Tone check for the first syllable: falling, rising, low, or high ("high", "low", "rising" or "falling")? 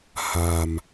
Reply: low